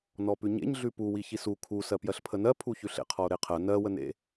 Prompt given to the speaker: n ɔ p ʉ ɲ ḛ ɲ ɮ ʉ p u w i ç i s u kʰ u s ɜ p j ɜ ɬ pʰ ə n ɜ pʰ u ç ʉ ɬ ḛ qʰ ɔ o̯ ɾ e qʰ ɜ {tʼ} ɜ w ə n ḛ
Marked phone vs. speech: incorrect: n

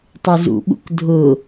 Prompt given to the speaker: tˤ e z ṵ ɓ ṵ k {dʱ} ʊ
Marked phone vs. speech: correct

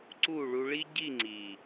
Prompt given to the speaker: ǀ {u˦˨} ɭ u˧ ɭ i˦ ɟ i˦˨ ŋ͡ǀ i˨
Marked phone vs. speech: correct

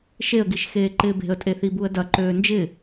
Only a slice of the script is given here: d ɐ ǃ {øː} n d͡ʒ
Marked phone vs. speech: correct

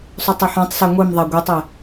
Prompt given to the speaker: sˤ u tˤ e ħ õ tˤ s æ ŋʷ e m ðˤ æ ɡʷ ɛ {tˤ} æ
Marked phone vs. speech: correct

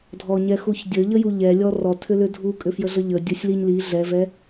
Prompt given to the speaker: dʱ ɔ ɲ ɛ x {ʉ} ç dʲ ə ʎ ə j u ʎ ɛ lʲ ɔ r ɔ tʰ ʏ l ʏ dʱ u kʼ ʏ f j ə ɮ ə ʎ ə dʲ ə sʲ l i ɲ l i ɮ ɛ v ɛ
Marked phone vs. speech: incorrect: u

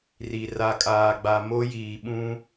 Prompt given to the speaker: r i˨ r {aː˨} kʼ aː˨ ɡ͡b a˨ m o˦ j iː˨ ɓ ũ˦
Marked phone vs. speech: incorrect: a˨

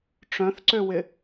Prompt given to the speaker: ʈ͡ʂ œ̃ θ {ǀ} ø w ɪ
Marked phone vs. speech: correct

